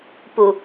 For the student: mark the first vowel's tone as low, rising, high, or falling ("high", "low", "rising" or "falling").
low